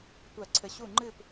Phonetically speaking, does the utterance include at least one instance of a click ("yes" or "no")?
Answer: yes